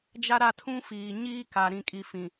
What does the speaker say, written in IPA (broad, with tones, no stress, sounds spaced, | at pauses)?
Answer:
d͡ʒ a˦ ɾ a˦˨ tʰ ũ˦ f iː˨ ɲ iː˦ k a˨ ɾ ĩ˨ kʼ i˨ f ĩ˨